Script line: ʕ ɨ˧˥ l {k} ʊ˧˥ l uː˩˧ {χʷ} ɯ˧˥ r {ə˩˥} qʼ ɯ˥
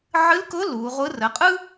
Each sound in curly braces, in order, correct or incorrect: correct, incorrect: ʁʷ, correct

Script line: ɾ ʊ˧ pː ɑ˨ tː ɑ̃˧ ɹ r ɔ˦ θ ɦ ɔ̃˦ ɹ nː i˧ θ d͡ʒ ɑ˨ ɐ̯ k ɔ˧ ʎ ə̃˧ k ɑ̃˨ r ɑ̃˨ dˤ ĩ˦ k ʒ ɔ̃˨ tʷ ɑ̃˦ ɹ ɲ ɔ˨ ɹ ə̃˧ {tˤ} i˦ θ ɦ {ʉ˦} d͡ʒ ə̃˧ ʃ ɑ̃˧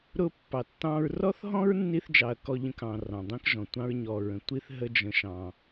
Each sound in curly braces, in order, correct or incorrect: incorrect: tʷ, incorrect: ə˦

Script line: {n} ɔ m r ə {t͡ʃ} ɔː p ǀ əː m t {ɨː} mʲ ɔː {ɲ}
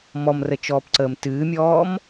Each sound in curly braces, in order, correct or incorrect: incorrect: m, correct, correct, incorrect: m

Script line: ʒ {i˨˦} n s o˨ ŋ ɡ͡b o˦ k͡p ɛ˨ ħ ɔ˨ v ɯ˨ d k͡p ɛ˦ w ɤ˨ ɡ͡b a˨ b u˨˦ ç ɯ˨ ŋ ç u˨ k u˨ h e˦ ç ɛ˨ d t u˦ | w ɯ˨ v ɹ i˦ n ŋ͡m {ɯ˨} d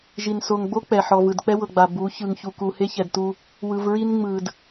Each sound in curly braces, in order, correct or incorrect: incorrect: i˨, correct

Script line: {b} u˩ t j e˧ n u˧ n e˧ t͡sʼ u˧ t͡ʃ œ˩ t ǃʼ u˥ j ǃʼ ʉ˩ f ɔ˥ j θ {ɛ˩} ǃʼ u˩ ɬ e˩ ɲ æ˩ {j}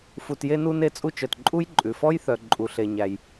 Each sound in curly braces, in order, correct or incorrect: incorrect: f, incorrect: œ˩, correct

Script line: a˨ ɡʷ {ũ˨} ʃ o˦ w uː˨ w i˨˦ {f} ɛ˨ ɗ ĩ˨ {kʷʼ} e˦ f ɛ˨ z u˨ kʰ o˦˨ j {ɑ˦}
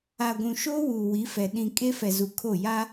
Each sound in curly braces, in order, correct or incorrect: correct, correct, incorrect: kʼ, incorrect: a˦

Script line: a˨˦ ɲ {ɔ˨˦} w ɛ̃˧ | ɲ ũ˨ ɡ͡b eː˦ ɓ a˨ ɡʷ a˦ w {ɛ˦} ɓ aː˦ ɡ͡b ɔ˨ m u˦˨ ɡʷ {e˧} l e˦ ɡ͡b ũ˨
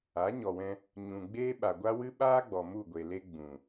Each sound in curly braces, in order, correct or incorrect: incorrect: ɔ˨, incorrect: ɨ˦, incorrect: e˨

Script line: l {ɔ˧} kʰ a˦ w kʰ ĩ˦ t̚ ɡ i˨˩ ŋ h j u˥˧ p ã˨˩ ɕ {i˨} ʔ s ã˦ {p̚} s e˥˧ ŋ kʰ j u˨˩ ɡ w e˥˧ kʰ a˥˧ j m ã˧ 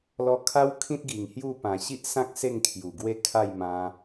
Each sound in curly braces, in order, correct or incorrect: correct, incorrect: i˦, incorrect: k̚

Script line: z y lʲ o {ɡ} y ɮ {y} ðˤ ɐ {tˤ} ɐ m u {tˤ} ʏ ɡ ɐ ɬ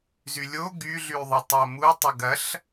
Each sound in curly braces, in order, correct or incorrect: correct, correct, correct, correct

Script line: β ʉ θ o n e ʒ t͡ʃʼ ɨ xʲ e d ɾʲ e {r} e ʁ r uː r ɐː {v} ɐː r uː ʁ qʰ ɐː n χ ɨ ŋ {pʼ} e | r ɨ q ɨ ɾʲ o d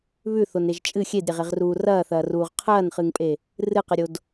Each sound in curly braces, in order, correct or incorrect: incorrect: ʁ, incorrect: θ, correct

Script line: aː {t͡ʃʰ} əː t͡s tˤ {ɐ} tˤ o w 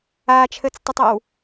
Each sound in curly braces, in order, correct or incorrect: correct, incorrect: ə

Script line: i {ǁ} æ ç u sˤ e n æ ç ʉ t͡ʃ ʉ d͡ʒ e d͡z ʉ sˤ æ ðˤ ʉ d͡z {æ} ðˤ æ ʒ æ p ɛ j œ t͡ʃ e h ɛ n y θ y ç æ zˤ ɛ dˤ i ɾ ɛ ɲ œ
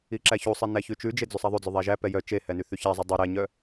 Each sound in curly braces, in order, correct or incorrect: correct, incorrect: œ

